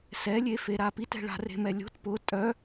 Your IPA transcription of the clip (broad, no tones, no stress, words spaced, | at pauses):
sɛlʲefeɾa pitɛ̤ɭa̤ re̤mɛlʲo̤t pʊ tʼœ